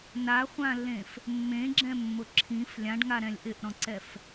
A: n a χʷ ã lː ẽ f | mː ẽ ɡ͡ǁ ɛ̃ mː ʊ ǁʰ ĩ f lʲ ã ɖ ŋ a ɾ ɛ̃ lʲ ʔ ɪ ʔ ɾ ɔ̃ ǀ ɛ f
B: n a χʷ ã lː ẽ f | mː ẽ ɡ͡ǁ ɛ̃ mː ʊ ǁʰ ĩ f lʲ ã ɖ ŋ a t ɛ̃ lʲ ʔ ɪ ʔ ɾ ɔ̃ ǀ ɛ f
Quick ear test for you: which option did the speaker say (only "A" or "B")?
A